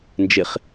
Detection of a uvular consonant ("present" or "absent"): present